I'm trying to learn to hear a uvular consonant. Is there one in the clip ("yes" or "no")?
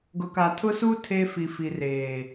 no